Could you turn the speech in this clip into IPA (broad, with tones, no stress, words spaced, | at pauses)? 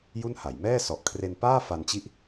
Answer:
ju˥˩nha˩˦j mɛː˥˩sɔ˨˩ʔ kʰre˧npaː˥˩ fa˧nt͡ɕi˥˩ʔ